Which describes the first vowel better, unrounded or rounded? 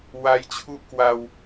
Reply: unrounded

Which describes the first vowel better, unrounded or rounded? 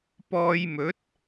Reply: rounded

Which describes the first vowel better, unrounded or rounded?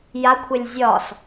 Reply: unrounded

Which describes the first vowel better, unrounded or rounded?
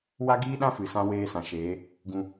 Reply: unrounded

